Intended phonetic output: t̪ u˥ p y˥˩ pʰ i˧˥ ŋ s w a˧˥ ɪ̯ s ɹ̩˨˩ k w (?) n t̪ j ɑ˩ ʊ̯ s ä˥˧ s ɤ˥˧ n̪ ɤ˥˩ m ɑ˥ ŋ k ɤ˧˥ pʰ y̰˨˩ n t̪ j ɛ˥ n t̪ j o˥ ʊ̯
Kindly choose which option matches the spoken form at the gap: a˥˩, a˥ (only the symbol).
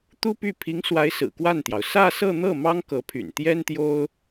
a˥˩